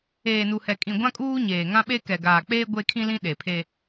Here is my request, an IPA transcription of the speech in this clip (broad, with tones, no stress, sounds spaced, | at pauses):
eː˨ n u˨ h ɛ˨ kʼ ĩ˨ ɡʷ ã˦ kʼ uː˦ ɲ eː˨ ŋ ã˦ ɓ e˦ k ɛ˨ ɡ aː˨ k͡p eː˦ ɡʷ e˦ kʰ ĩ˦ l ĩ˦ ɗ e˨ pʰ e˦